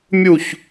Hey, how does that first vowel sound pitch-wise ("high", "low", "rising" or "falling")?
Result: falling